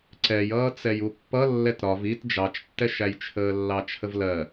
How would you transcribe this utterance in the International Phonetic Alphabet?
ǀ ɛ j ʌː t͡s ɛ j u pː ʌ lː ɛ t ɾ ɒ v i t d͡ʒ ɑ t͡ʃ tː ɛ ʃ æ j t͡ʃʰ əː lː ɑ t͡ʃʰ ə v l ɜ

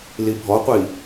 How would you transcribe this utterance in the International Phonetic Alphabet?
l i bʱ ɔ qʷ i

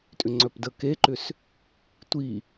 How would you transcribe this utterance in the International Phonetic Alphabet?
tʼ ʏ ŋ͡ǀ œ p d ə k e ǃ ʏ s | tʷ i

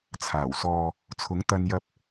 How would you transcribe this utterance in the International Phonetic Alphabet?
t͡sʰ aː˨˩ w s ɔː˨ | t͡sʰ ʊ˨˥ ŋ t̪ ɐ˧ n j ɐ˧ p̚

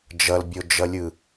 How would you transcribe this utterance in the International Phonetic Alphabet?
d͡ʒ ʌ l bʲ o d͡ʒ ʌ lʲ ɯ

